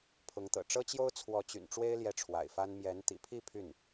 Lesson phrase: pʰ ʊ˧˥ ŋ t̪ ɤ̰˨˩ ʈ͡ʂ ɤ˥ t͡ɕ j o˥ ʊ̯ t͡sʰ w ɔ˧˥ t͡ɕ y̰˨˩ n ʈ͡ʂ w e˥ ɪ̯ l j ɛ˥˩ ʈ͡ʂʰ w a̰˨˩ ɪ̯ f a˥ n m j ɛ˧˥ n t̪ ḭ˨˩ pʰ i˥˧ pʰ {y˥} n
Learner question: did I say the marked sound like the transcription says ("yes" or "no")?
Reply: no